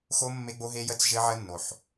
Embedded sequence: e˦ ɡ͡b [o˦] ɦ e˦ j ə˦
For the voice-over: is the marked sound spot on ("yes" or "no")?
yes